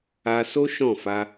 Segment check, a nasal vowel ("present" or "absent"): present